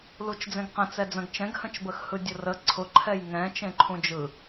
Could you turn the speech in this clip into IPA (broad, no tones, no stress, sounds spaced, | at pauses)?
l u t͡ʃ d͡z ẽ ɡ q ə̃ t͡s ɛ d͡z ə̃ ɡ t͡ʃ ɛ̃ ɡ h ə̃ t͡ʃ b ə x h ɯ dʲ ʊ r ə ǀʰ ʊ ǃʰ ɛ j ŋ ɛ̃ t͡ʃ ẽ ǃʰ ũ d͡ʒ ɯ